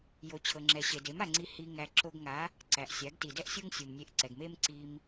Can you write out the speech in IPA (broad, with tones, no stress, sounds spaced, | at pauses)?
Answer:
j o˨ t͡ɕʰ ɤ˨ ŋ͡ǁ ɛ˨ ɕ e˨ d e˨˦ m a˨ ŋ͡ǀ i˧ h i˧ ŋ æ˧ ǁ o˧ ɡ ŋ a˨˦ | ǀ æ˨ ʔ sʲ a˨˦ ɡ t i˨ d ɛ˦ ʔ sʲ o˦ ŋ sʲ u˨ m nʲ e˧ ʔ ǀ ɛ˨ ɡ m e˦ m ǀ i˧ m